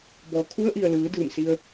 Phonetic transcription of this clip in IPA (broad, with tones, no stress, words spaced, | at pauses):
bɔː˩˧kʰu˧˥ə̯ʔi˩ə̯ lɯː˩˧dɯː˧˩msi˧ə̯